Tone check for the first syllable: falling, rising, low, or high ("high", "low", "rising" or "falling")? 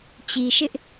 low